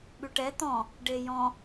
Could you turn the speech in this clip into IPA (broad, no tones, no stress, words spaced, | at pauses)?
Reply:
ɓʉʈɛ t̪ɔ̃ | ɖejɔ̃